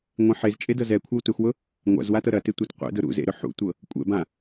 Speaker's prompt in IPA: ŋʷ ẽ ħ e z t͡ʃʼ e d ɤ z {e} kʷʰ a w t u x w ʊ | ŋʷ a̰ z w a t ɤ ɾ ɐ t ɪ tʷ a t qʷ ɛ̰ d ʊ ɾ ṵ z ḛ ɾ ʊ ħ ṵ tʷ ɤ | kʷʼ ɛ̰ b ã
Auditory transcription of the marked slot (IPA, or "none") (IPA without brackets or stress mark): ɛ